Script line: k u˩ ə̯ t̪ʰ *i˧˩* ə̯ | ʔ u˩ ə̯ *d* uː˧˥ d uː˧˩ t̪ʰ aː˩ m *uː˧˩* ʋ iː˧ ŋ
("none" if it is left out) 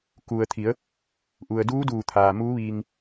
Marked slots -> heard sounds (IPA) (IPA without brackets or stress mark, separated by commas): i˩˧, d, uː˧˥